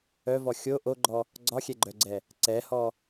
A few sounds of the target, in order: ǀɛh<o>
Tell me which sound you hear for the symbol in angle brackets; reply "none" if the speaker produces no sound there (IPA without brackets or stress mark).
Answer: ɔ